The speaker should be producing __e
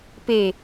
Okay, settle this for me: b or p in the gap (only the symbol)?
p